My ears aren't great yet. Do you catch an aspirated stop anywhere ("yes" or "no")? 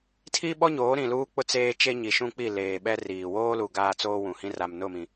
yes